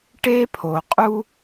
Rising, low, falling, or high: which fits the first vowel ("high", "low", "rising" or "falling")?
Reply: high